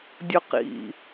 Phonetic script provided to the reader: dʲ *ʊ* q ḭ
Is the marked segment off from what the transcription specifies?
no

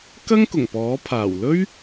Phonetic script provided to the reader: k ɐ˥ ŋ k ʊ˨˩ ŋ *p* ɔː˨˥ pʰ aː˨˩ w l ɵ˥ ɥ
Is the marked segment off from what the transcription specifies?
no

